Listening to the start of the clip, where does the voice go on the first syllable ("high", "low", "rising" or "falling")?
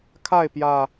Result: falling